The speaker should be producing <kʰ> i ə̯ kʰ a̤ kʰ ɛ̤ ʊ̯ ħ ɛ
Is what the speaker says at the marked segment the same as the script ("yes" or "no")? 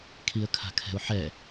yes